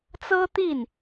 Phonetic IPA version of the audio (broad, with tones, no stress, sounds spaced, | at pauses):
t͡s ɤ˥ t̪ i˥˩ n